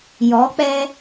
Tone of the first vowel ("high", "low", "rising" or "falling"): rising